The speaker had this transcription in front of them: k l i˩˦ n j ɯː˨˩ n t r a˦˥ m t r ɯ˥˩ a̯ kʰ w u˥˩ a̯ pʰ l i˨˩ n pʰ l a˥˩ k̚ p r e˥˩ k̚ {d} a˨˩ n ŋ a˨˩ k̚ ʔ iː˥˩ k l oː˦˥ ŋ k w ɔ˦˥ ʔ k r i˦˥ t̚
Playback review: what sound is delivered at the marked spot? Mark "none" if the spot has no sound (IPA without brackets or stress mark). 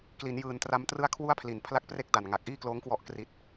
d